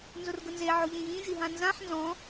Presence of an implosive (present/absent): absent